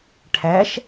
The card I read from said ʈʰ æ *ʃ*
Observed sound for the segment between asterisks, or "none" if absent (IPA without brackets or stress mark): ʃ